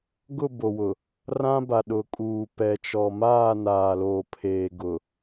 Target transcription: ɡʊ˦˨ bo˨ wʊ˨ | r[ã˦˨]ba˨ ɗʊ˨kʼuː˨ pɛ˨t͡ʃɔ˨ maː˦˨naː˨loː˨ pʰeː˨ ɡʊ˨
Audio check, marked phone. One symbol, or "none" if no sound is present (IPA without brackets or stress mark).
ã˦